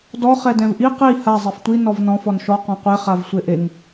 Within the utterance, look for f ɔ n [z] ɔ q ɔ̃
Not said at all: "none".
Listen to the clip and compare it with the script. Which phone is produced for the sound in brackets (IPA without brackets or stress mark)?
ʃ